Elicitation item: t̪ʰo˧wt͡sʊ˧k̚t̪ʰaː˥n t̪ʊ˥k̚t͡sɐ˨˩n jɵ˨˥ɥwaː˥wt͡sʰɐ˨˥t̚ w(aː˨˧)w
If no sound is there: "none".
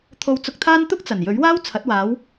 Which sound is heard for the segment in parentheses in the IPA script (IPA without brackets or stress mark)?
aː˨˧